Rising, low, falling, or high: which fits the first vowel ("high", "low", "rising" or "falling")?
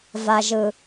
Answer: low